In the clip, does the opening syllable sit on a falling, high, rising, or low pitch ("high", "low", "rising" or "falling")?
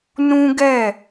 high